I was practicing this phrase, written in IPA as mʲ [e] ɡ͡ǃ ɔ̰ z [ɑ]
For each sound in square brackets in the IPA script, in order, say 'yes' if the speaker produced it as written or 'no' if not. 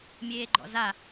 no, no

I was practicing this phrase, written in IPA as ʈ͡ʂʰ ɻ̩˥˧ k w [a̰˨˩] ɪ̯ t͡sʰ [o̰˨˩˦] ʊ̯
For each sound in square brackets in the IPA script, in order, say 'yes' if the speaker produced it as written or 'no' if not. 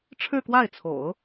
no, yes

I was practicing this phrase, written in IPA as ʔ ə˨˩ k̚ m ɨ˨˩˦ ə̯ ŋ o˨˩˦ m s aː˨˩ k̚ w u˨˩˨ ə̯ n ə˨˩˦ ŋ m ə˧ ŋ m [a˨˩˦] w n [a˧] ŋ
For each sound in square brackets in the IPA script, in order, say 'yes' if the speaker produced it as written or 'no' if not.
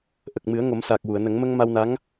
no, no

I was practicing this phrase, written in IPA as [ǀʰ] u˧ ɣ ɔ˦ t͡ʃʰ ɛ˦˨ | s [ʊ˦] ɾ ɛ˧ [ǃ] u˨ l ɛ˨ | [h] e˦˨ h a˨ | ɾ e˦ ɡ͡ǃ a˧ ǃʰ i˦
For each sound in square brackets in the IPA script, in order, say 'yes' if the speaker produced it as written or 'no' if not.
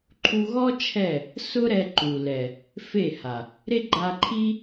no, yes, yes, no

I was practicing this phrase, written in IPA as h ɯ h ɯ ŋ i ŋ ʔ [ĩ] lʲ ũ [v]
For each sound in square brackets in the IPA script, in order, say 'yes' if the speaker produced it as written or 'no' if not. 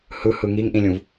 yes, yes

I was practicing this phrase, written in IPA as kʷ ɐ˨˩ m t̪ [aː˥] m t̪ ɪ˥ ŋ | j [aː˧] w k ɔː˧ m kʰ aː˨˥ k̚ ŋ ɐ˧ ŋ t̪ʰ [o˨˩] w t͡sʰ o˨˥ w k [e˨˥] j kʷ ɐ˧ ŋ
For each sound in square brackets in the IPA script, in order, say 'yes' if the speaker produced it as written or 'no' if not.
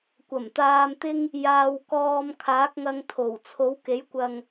no, yes, yes, yes

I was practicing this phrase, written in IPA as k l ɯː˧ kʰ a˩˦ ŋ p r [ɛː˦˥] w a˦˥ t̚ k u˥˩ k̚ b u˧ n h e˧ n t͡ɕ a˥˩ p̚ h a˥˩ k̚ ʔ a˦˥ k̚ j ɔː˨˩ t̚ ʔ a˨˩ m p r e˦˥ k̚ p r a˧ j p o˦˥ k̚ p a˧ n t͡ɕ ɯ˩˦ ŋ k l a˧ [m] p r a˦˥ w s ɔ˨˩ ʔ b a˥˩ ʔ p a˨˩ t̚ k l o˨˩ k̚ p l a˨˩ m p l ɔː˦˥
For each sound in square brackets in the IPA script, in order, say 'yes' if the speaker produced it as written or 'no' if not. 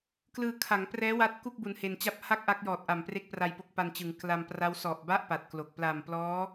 yes, yes

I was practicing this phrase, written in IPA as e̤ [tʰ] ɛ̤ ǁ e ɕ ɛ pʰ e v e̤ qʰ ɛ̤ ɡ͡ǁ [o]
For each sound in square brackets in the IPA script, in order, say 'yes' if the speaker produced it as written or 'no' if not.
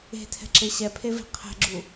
yes, no

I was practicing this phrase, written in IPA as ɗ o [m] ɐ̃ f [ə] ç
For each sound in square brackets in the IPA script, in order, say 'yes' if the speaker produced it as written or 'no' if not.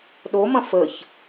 yes, yes

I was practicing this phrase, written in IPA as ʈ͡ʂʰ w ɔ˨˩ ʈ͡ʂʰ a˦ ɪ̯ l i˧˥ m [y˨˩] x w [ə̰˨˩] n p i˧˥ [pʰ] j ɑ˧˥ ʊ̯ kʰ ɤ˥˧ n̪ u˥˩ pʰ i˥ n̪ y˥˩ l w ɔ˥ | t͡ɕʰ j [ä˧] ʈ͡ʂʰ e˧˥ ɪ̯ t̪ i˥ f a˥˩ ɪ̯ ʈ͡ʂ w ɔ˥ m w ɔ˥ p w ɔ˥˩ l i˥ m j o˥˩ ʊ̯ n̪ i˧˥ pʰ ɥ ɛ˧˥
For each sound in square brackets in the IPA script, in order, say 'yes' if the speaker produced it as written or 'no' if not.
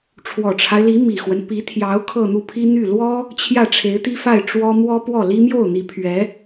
no, no, no, no

